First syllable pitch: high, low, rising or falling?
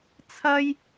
high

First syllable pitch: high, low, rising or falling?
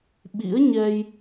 rising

